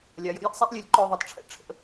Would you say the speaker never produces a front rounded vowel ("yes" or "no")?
no